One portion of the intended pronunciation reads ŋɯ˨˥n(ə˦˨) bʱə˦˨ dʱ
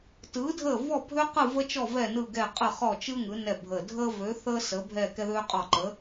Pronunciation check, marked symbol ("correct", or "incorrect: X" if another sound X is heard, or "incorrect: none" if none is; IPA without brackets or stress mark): incorrect: ɛ˦˨